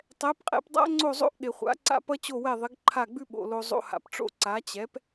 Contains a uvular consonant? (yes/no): yes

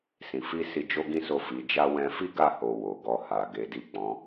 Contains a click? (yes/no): no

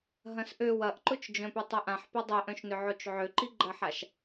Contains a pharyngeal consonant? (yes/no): yes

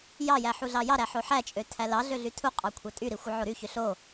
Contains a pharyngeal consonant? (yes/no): yes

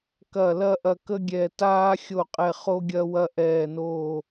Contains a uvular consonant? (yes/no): yes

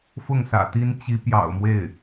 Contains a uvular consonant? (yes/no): no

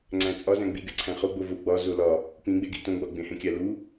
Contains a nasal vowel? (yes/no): yes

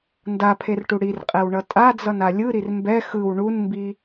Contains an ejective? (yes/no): yes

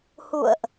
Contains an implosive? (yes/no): no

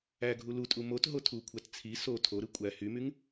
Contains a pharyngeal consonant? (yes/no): no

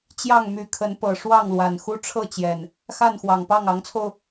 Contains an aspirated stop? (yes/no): yes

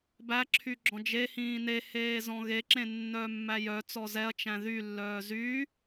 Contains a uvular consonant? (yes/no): no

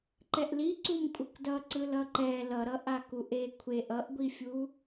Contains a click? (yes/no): yes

